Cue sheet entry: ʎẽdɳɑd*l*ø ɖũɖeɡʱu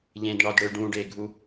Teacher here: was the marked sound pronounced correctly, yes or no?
no